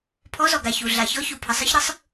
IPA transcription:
pʰ ɔ˧˥ z ɔ˨ ɡ a˨ ç u˨ ɮ a˨ ç ɔ˧˥ ç u˨ pʰ ə˨ sˤ ɯ˧˥ ç ɾ ɯ˧˥ sˤ

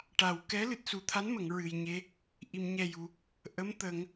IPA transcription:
ʈ a˨˩ w k ɛ˧˥ l ɨ˨˩ t̚ s u˨˩ t̪ʰ a˧˥ n m ə˨˩˨ ŋ ɹ ɨ˨˩ j ɲ e˧ | ʔ i˨˩˨ m ɲ ɛ˨˩ j u˨˩˨ | ʔ ə˧˥ m t̪ ə˨˩˦ ŋ

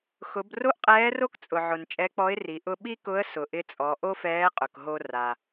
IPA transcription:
x ʊ˩˧ b r o˥ ʔ qʼ ɛː˧˥ r o˥ k t͡sʼ ʊ˩ ʕ ʊ˩ n t͡ʃʼ ɛ˧˥ k͡p ɔ˧˥ ɪ̯ r i˩˧ ʔ ʊ˧ ɓ i˥ k ʊ˧˥ ə̯ s ʊ˩ ʔ ɪ˧˥ t͡sʼ ɔ˩˧ ʔ o˥ f ɛː˧˥ qʼ ʊ˩ k ɦ o˧ r a˩

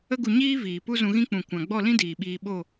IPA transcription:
ə˦ ɡ u˧ ɲ iː˦ v iː˨ p u˦ z ũ˧ ɣ ĩ˦ k͡p ũ˨ kʷ ã˨ ɡ͡b ɔ˦˨ l ĩ˦ d iː˨ ɓ iː˧ ɓ o˦˨

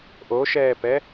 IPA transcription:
ʔ o ʃ ɛː p ɛ

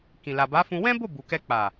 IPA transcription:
k ĩ˨ l a˨ b a˨˦ f ũ˧ w ɛ̃˦ b o˦˨ b u˨ k ɛ˧ k͡p a˨

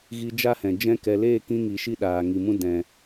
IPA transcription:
ɣ i˧ d͡ʒ a˦ h ɛ̃˨ d͡ʒ ɛ̃˦ k ɛ˧ l eː˦˨ k ĩ˧ ŋ i˨ ʃ i˦ ɗ aː˨ ŋ i˨ m ũ˦ d ɛ̃˨

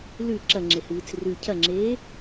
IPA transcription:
l ʉ ǁ ɐ ŋ͡ǁ e h ɨː t͡s r ʉ cʰ ɐ ŋ͡ǁ eː

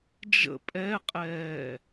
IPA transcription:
d͡ʒ ə̰ pʼ ɛ qʼ ɛː

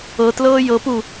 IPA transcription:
ɤ t l ɤː j ɤ p u

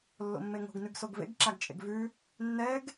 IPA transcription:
lː o̰ mː e ŋ o̤ ɡ n ʉ ɡ s o ɡ v ḛ ɡ ǁ a ɡ t͡ʃʼ ḛ ɡ v ʉ | nː ɛ ɡ

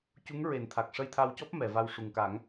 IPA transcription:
c u˧˥ ŋ ɹ e˨˩˦ n t̪ʰ a˨˩ k̚ ʂ ə˧ j t̪ʰ a˧ w c ɔ˦˥ p̚ m ɛ˨˩˨ v a˧ w ʂ u˨˩ ŋ k a˨˩˦ ŋ

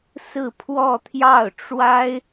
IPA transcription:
s ɹ̩˥˧ pʰ w ɔ˥˧ t̪ʰ j ɑ˥˩ ʊ̯ ʈ͡ʂ w a˥ ɪ̯

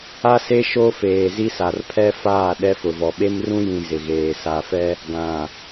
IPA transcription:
a˦ s e˦ ʃ o˦ f eː˨ z i˦ s a˨ r pʰ ɛ˦ f aː˦˨ ɗ ɛ˦ f ʊ˨ v ɔ˨ ɓ e˦ m r ũ˦ j ĩ˨ z ɪ˨ ɣ eː˨ s a˨ f ɛ˦ | ɡ ã˨

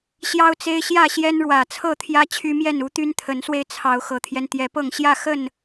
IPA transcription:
ɕ j ɑ˦ ʊ̯ t͡s e˦ ɪ̯ ɕ j ä˥˨ ɕ j ɛ˦ n ɻ w ä˨˩ t͡sʰ ɤ˥˨ t̪ʰ j ä˦ t͡ɕʰ y˦ m j ɛ˥˨ n u˦ t̪ y˦ n t̪ʰ ə˨˦ n s w e˧ ɪ̯ t͡sʰ ɑ˨˦ ʊ̯ x ɤ˨˩ t̪ʰ j ɛ˦ n t̪ j ɛ˨˦ p ɤ˥˨ ŋ ɕ j ä˥˨ x ə˥˨ n

